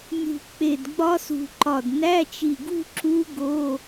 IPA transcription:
nʲ ṳ˧˩ k͡p e˧˩ d ɡ͡b ɒ˦˥ s ṳ˧˩ ǃ ɒ˧˩ d n æ˧˥˧ t͡ʃ i˧˩ ɡ ṳ˥˧ ǁ u˦˥ ɡ o˧˥˧

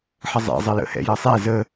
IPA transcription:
ħ ə zˤ ɛ̰ zˤ ə j ə̰ h ɛ̰ j ʌ sˤ ɛ z ə

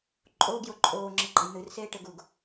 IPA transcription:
ǃʼ oː ɡ j o ǃʼ oː ŋ͡ǁ ɘ ɡ͡ǃ ə j n̪ ɨ r s eː ʈ ɘ ɡ u ɡ

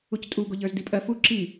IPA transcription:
u c tʼ u ɡ o ʎ ə˞ z d i pʼ ɜ f u ǁ i

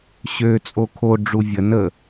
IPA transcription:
ɕ ø t͡sʼ o kʰ o ɖ͡ʐ u vʲ ə n ə

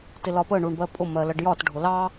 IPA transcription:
t ɪ l ɒ p ə ɳ u ɳ b ɜ pʼ ʊ m ɜ l ɜ ɖ j ɒ t ɖʱ ʊ l ɑ

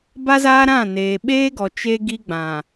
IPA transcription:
b a˦ z aː˦ ɾ ã˦˨ n eː˨ ɓ eː˦ ɡ ɔ˨ t͡ʃ e˦ ɡ i˦ ɡ͡b ã˨

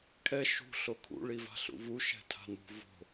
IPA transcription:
kʰ ɛ ʃ ṳ ɬ o kʰ ṵ ɭ i v a̤ ɬ ṵ v u ʃ ɛ̤ tʰ a̤ n ṳ v o̤

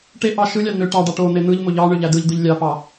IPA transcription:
ʈ e ʔ ɑ ʃ ɯ lʲ ɑ n̪ ø ʈ ɑ ɖ ɑ ʈ o n̪ e n̪ ɯ ʎ m o ʎ ɑ ɳ ø ʎ æ d ɯ ʎ d̪ ɯ ʎ lʲ ɑ p ɑ

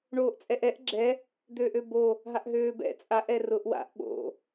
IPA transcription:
ɳ oː ʔ t͡sʼ ɛ ʔ ɛ ʔ ɡ͡ǁ ɛ | d̪ øː ʔ ø b o | ɦ a ʔ ɦ øː b ɛ̰ t͡sʼ a ʔ ɛ r ʊ ʔ w a̰ ʔ ɓ o̰

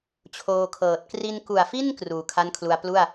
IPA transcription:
t͡ɕʰ oː˧ kʰ ɤː˨˩ t̚ k r i˧ n k u˨˩ a̯ f i˥˩ n k r uː˨˩ kʰ a˥˩ n kʰ l u˧ a̯ p l u˥˩ a̯

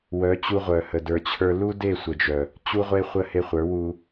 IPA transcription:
w œ˨˦ t͡ɕ u˧ ʁʷ œ˨ h ə˨ d ə˞˧ t͡ɕʰ ə˞˦ l u˦ d e˦˨ sʷ ə˨ d͡ʒ œ˨ | t͡ɕ u˦ ʁʷ e˦ χʷ ə˦ h e˧ χʷ ə˞˨˦ w u˧

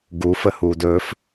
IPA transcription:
ɡ u f ə h uː d ɵː f

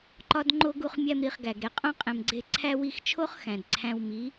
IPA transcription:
ǃ ɒ˧ d ŋ͡ǃ o˧ ɡ u˧ χ mʲ æ˧ m ɾ i˨ χ ɡ æ˨ ɡ ɾ e˨ qʼ õ˧ qʼ ẽ˨ m ɡ͡ǀ e˧ ǀʰ æ˧ w i˦˨ x t͡ʃʰ o˦ χ x æ̃˨ d ǀʰ æ̃˧ w m i˨˦

